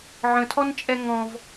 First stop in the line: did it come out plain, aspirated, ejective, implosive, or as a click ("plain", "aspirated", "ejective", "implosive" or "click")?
aspirated